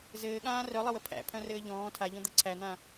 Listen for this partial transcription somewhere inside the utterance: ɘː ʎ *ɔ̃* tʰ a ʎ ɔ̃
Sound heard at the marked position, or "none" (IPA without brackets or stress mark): ɔ̃ː